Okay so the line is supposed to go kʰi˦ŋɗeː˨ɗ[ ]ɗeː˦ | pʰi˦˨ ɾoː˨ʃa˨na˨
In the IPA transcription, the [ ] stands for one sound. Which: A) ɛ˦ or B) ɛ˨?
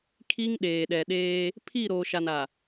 B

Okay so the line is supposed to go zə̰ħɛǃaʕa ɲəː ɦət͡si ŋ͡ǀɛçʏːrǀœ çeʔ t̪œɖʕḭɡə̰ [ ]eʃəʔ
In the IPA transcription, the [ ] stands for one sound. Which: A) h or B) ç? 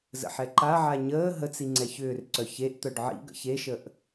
B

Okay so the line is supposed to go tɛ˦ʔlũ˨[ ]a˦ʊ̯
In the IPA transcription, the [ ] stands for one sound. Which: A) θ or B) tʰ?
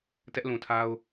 B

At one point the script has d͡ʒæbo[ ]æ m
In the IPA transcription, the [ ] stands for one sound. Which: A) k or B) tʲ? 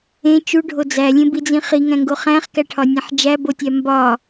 B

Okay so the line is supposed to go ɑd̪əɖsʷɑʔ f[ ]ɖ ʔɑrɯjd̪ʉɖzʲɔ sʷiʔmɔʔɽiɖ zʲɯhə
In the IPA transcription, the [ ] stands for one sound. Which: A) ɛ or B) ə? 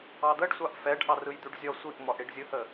A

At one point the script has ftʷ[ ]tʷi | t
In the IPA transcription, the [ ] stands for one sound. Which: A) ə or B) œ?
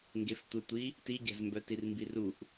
A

